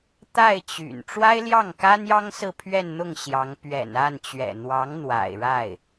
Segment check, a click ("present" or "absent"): absent